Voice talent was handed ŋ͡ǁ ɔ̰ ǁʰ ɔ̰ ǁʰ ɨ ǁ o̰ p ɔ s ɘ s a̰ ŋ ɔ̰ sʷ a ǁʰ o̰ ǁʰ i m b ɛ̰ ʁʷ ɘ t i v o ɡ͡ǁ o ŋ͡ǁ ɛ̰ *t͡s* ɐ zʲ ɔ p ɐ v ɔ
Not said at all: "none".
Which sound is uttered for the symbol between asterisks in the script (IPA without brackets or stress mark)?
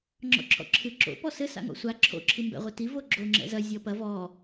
z